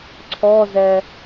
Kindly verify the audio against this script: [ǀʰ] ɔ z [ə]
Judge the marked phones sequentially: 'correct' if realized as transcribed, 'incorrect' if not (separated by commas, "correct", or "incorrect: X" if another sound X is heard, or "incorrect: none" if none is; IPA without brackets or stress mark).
correct, incorrect: ɛ